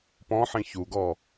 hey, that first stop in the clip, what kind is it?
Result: plain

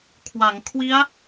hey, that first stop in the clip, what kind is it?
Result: aspirated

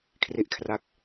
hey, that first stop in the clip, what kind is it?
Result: aspirated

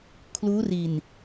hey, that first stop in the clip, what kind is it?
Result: aspirated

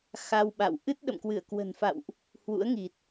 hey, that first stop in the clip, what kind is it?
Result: implosive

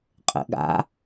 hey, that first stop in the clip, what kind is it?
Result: ejective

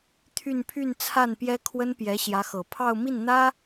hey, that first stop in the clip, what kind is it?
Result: aspirated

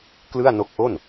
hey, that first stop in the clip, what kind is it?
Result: plain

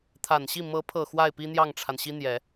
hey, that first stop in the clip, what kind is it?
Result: aspirated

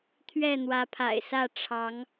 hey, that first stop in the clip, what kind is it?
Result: aspirated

